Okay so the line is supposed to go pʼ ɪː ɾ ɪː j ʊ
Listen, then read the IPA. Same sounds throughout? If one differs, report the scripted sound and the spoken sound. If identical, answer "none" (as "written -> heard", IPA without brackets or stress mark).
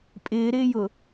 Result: none